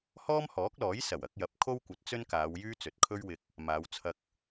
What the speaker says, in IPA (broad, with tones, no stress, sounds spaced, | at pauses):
h ɔː˥ m h ɔː˨˥ k̚ l ɔː˨˥ j s ɐ˨˩ w ɐ˨˥ k̚ j ɐ˨˥ p̚ kʰ o˥ w kʷ ɐ˨˥ t̚ t͡s ɵ˥ n k aː˨˧ w j yː˥ t͡s ɵ˨˥ t̚ kʰ ɵ˥ ɥ w ɪ˧ k̚ | m aː˨˧ w t͡sʰ ɐ˧ k̚